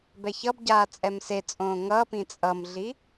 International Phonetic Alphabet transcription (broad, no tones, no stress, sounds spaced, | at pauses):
b ɛ ç ʌ b ɟ aː t͡sʼ ɛ m s e t͡sʼ õː ŋ ʌː p ĩ t͡sʼ ʌ m ɮ i